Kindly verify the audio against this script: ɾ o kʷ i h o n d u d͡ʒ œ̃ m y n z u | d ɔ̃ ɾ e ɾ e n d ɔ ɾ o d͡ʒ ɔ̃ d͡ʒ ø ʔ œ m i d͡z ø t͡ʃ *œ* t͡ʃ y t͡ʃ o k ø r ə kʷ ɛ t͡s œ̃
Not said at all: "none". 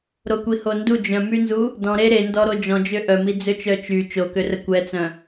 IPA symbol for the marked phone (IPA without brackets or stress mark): œ